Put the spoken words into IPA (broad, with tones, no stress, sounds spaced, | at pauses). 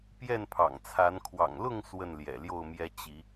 p j ɛ˥˨ n pʰ ɑ̰˨˩ ŋ t͡sʰ a˨˦ n kʰ w ɑ̰˨˩ ŋ l ʊ˥˨ ŋ s w ə˥˨ n l j ɛ̰˨˩ l j o˥˨ ʊ̯ m j ɛ˦ t͡ɕ i˨˦